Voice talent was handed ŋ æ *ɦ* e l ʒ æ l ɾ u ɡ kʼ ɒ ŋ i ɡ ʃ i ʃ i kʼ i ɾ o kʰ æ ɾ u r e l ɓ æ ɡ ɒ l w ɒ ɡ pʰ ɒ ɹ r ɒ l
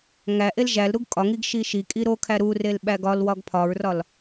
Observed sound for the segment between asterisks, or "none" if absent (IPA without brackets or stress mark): ʔ